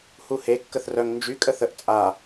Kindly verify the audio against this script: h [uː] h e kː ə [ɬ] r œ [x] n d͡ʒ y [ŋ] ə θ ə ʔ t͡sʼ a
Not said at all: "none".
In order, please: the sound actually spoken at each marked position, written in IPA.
u, θ, ŋ, kʼ

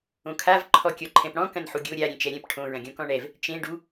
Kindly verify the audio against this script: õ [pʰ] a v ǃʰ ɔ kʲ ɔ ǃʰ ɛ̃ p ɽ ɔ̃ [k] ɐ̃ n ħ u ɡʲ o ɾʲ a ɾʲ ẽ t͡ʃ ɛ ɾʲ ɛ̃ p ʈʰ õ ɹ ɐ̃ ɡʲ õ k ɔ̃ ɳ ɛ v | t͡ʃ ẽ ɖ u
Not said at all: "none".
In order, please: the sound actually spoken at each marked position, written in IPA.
kʰ, k

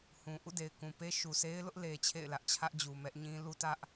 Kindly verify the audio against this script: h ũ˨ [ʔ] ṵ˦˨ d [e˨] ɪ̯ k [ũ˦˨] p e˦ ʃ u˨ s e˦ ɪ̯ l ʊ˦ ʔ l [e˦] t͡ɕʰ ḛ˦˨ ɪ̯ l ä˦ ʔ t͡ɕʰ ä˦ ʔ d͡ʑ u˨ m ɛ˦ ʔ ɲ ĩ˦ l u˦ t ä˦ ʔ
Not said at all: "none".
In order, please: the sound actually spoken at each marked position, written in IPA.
ʔ, e˨, ũ˨, e˦

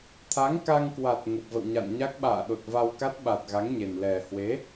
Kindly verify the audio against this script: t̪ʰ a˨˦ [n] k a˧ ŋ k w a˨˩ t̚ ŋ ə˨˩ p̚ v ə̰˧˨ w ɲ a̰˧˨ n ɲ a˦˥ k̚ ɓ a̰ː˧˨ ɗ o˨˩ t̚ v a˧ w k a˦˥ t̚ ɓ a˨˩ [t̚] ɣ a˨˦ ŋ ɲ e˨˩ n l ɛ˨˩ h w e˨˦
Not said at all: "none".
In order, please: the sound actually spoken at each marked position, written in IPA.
ŋ, t̚

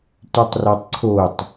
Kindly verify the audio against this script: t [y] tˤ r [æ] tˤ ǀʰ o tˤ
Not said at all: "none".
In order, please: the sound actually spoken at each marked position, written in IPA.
y, æ

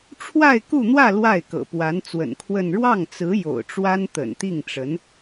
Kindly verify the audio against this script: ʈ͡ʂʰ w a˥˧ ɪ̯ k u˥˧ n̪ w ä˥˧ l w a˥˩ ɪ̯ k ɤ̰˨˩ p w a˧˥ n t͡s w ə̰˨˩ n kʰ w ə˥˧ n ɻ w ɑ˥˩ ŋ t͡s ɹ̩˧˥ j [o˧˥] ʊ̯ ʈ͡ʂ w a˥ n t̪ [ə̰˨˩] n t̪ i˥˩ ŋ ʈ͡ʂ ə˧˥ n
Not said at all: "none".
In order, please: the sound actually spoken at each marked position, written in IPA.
o̰˨˩, ə̰˨˩

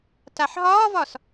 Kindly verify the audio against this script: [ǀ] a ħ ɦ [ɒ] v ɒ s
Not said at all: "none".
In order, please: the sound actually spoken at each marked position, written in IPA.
t, ɒː

